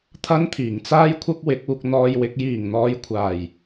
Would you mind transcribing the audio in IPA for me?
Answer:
t̪ʰ ɐ˥ n t̪ʰ iː˨˩ ŋ t͡s aː˥ j kʷʰ ɐ˥ p̚ w ɪ˨˥ k̚ uː˧ k̚ n̪ ɔː˧ j w ɪ˨˥ k̚ j iː˨˩ ŋ n̪ ɔː˨˧ j kʷʰ aː˨˩ j

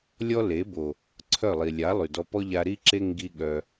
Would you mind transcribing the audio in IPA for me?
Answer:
lʲ ɔ˦ l e˨˦ b o˨ | ǀʰ œ˦˨ lˠ i˨ lʲ a˨˦ lˠ y˨ d ɔ˧ p ɔ˦ ʎ a˧ ɾ i˦ ǁ e˦ ŋ ɡ i˦ ɠ œ˧

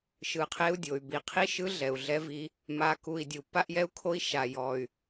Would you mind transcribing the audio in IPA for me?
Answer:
ʃ ɯ˨˩ qʰ e˦ u̯ dʲ o˨˩ y̯ b i˨˩ qʰ i˦ ʃ ɯ˦ ɮ ɛ˨˩ u̯ ɮ ɛ˦ v i˦ | m a˨˩ k u˨˩ i̯ dʲ u˨˩ pː a˦ ʔ j ɛ˦ u̯ kʰ o˦ i̯ ʃ a˨˩ j ɔ˨˩ y̯

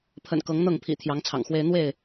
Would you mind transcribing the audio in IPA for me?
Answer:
pʰ ə̰˨˩ n k ɤ˨˦ ŋ n̪ ɤ˥˨ ŋ pʰ ḭ˨˩ t̪ʰ j ɑ˨˦ ŋ t͡sʰ ɑ̰˨˩ ŋ x w e˦ ɪ̯ n̪ w e˥˨ ɪ̯

